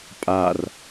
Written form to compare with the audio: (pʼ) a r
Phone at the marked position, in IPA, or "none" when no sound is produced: pʼ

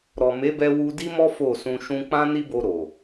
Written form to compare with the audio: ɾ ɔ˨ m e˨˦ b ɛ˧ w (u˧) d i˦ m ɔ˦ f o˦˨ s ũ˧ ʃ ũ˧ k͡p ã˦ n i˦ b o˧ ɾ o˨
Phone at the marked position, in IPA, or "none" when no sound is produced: u˧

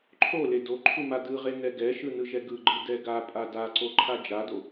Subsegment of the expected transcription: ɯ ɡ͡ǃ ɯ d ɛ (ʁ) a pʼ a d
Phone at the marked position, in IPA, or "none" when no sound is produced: ɡ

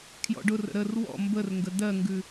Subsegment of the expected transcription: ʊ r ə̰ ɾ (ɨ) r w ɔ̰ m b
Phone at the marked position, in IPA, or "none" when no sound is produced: ə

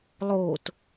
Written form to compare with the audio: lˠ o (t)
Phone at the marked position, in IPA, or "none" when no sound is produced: t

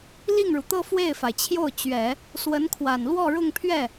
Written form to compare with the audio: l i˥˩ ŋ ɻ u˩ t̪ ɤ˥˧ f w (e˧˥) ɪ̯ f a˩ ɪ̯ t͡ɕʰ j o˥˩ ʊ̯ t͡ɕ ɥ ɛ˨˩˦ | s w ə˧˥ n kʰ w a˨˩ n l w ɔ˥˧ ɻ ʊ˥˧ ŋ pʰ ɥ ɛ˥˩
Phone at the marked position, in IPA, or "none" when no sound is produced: e˥˩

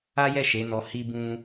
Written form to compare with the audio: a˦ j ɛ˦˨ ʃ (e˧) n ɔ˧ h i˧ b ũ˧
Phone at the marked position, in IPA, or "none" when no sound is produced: e˨˦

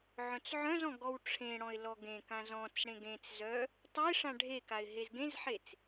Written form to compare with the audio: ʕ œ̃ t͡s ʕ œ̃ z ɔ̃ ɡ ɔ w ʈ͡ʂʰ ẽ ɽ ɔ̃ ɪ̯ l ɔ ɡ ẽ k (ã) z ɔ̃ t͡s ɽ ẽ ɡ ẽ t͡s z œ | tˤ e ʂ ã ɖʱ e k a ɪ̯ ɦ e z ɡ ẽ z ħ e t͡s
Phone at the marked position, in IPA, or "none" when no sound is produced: ã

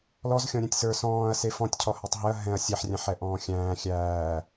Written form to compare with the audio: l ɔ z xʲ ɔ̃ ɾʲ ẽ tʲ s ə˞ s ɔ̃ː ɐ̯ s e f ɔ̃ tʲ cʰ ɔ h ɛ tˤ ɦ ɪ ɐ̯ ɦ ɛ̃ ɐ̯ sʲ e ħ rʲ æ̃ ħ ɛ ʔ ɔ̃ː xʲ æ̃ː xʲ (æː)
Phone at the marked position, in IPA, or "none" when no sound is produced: æː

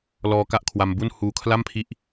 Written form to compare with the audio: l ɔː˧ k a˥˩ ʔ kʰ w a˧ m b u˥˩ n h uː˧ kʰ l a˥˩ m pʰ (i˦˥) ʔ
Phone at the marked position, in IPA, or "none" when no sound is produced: i˦˥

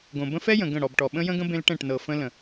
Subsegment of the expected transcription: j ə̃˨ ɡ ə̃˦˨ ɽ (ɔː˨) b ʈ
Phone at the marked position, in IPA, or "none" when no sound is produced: ɔ˨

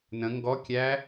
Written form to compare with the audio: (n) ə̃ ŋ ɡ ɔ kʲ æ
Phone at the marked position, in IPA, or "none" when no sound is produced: n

